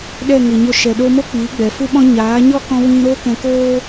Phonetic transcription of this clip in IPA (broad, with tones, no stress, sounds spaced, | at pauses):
ɗ ɛ˦˨ ŋ ɨ˨ ɲ o˦˨ ʃ ɛ˨ ɗ o˧ m o˦ k͡p iː˨˦ ɡ͡b ɛ˨ f u˦ ɓ ɔ̃˦ ɲ aː˨˦ ɲ ɔ˦ k ɔ̃˧ w ĩ˧ ɾ oː˦ k ɛ̃˧ k oː˦